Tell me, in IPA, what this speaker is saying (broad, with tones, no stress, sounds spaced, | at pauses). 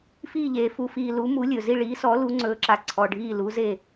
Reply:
f iː˦˨ ʎ eː˨ f u˨ f iː˨ l u˨˦ m u˨˦ lʲ ɵ˨ z i˦˨ ɭ iː˨˦ s ɔ˨˦ l u˨˦ ŋ͡ǀ ɵː˨˦ ǁ a˨ ǀʰ ɔ˨ ɖʱ iː˦˨ l u˨˦ z eː˦˨